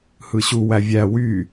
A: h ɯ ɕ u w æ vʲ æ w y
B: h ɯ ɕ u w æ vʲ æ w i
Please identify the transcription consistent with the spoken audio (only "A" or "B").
A